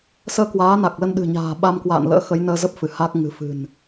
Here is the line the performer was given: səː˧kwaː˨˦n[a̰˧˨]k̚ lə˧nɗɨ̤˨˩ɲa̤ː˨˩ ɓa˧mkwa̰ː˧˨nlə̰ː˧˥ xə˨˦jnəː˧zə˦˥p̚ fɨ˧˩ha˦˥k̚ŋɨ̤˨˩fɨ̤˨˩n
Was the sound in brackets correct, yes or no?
no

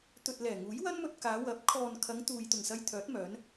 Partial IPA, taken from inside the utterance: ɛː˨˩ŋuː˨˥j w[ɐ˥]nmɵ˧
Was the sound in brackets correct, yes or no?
yes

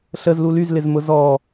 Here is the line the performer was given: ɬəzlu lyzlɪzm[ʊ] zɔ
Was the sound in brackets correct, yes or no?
yes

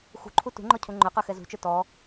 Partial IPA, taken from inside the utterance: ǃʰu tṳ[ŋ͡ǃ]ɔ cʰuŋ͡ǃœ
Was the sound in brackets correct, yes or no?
yes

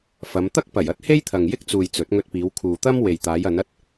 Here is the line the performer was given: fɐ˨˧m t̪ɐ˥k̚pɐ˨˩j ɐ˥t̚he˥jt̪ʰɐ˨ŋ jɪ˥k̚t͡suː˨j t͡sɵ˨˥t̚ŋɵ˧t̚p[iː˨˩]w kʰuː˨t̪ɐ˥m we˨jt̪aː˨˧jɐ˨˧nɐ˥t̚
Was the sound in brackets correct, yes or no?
no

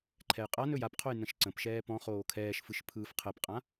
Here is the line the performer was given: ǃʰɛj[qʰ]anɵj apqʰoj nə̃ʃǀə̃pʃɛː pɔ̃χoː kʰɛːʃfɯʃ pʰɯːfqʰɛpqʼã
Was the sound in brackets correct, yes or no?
no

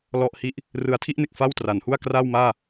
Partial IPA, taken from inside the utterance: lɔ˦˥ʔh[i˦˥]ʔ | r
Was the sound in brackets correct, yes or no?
yes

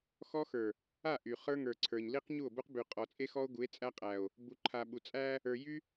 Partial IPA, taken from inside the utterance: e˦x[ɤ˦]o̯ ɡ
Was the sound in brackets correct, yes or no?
no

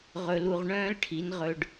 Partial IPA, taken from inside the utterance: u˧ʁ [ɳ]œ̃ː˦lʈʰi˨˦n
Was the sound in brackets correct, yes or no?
yes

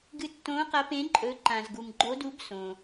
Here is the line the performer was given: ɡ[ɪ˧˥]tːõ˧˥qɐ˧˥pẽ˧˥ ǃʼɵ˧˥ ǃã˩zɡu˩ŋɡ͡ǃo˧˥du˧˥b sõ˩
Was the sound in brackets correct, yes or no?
no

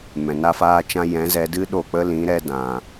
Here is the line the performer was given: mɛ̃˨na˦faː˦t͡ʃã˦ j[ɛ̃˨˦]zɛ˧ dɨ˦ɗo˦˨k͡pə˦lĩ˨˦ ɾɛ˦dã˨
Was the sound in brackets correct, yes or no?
yes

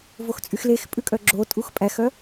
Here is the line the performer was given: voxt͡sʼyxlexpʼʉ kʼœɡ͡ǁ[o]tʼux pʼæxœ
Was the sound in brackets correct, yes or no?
yes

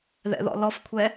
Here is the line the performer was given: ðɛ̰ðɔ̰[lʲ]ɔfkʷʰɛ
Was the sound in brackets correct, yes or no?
no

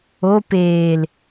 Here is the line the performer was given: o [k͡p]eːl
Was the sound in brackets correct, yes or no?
no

